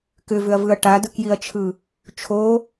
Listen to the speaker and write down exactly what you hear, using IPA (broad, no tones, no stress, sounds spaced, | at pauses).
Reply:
k ʏ v ʏ ɐ̯ v ɯ ɐ̯ ʈ a d ɯ k j i ɐ̯ t͡ʃʰ ɯ | t͡ʃʰ o